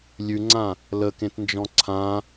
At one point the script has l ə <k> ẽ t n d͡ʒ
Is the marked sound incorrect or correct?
correct